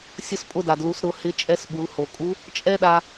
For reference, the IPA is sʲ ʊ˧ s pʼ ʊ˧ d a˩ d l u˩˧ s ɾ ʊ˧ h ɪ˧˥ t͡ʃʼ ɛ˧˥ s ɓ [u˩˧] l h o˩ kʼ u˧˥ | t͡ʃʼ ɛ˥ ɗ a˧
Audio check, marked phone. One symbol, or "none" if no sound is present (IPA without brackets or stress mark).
u˩˧